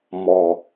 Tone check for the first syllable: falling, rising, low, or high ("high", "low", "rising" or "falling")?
low